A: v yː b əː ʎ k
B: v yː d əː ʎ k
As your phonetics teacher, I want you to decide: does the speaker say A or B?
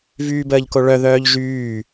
A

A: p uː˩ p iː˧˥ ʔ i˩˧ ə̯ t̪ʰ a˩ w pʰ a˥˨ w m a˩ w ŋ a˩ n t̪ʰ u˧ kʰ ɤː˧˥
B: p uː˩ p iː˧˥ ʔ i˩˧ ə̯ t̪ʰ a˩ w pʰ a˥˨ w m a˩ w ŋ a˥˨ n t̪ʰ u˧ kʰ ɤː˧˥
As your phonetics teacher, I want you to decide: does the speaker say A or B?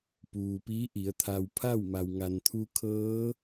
A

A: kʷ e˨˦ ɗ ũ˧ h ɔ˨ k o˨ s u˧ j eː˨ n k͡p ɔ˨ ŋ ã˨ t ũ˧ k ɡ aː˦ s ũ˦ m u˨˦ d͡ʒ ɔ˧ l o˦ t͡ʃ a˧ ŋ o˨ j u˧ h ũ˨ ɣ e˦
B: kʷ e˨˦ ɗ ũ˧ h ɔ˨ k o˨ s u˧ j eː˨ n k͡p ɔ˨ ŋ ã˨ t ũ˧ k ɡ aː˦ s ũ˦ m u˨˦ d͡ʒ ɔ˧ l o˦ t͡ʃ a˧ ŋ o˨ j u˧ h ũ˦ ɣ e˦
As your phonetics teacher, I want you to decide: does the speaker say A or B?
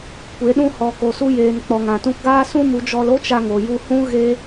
B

